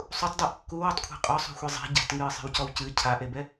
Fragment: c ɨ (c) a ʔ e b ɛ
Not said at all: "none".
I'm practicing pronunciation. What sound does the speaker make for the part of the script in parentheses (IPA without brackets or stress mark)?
cʰ